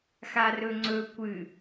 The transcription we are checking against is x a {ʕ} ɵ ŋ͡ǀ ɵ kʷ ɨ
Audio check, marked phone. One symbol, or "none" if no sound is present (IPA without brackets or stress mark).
r